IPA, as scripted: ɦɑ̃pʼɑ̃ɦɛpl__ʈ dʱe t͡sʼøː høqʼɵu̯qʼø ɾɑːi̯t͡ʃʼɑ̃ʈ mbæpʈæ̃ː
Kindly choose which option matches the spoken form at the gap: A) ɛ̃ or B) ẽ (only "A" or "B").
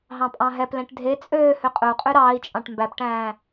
A